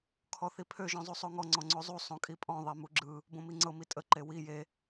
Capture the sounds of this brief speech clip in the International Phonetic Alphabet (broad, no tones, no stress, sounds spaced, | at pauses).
kʰ ɔ θ i pʰ ø ʒ ɔ̃ zˤ u sˤ o ŋ ɔ ŋ͡ǀ ɔ̃ ŋ͡ǀ o zˤ u sˤ õ kʼ i pʼ ɔ̃ ðˤ e m u ɡ͡ǁ ɯ | b õ m i ŋ͡ǀ ɤ m i tʼ ə ǃ e w i j e